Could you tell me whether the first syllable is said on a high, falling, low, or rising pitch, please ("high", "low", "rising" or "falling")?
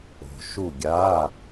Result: low